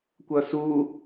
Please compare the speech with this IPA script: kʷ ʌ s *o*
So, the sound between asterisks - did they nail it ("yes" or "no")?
no